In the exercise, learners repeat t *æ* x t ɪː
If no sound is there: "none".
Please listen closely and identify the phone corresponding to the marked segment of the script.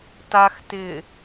a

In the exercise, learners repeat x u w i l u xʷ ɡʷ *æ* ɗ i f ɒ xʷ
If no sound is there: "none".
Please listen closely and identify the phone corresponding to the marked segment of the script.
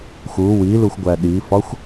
æ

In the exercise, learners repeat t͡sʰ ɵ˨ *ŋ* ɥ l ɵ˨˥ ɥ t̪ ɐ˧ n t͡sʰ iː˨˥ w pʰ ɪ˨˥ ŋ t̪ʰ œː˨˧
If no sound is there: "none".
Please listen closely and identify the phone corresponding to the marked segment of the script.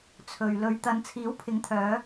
none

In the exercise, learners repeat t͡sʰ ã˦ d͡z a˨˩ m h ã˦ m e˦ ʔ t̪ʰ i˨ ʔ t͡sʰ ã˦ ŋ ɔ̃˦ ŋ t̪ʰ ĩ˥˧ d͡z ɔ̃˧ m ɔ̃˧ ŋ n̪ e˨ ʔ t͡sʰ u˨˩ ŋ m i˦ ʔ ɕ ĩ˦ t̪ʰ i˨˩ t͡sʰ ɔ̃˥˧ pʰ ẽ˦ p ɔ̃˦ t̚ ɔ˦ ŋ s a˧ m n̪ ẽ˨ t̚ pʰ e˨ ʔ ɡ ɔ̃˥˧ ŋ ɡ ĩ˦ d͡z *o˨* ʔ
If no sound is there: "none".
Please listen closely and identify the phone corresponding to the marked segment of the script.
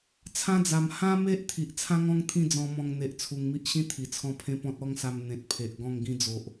o˨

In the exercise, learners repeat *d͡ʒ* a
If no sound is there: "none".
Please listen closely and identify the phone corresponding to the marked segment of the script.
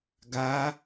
ɡ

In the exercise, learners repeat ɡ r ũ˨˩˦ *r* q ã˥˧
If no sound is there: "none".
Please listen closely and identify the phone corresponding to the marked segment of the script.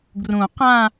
none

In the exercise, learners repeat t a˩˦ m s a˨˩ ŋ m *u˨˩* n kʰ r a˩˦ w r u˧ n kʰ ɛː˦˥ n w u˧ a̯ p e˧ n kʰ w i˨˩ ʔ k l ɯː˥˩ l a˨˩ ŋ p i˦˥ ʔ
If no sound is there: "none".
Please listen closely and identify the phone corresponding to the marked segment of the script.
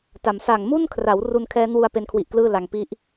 u˥˩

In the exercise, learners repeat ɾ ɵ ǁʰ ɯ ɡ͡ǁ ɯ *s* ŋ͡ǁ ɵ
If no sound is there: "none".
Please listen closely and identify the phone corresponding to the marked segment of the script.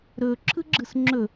s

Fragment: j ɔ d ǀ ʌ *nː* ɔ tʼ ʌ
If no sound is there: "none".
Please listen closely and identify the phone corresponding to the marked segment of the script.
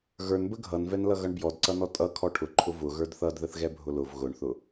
n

